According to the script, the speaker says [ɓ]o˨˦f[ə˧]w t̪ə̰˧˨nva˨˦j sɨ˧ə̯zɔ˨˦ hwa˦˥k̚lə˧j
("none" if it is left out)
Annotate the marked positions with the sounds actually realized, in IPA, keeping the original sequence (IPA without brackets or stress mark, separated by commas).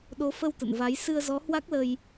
ɗ, ə˧